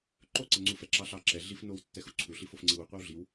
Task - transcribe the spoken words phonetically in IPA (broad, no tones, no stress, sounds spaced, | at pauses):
ǃ o ǀ ɛ ŋ͡ǀ u f ɛ ǁ ɑ ɬ ɑ ǁ ɛ ɮ i f n o w tː ɛ x u ǀʰ u ɬ i f o f ŋ͡ǀ i w u qʷ ɛ w ɮ i w